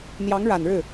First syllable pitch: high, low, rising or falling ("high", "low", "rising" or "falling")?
rising